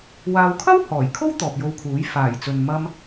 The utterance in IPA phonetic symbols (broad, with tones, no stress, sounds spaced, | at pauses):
w aː˨ w kʰ ɐ˥ w h ɔː˨˩ j kʰ o˥ w t̪ ɔː˨ p̚ j o˧ w kʰ uː˨˥ j f aː˨˩ j t͡s ɵ˨ n m ɐ˧ m